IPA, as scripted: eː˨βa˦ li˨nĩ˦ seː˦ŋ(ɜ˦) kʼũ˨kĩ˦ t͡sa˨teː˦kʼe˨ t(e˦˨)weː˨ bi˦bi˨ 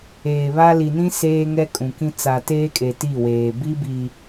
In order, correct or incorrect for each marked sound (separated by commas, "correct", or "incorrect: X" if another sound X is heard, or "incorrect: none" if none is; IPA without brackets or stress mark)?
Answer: incorrect: ɛ˦, incorrect: i˦˨